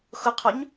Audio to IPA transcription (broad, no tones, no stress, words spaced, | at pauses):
xʊqʰoɲ